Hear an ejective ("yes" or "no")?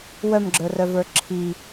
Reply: no